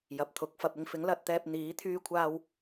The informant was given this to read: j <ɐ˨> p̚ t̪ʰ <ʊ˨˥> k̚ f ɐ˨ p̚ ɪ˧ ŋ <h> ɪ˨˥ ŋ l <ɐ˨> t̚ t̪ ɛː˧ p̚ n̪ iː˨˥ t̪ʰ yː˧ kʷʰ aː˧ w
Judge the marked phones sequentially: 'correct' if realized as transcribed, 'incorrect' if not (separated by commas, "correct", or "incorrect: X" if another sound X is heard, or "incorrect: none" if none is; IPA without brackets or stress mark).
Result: correct, correct, incorrect: f, incorrect: ɐ˧